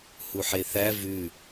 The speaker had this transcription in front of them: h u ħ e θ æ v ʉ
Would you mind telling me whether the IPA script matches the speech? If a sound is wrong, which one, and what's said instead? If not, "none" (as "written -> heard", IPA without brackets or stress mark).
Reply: none